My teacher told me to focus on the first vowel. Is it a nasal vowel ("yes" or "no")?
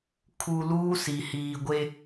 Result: no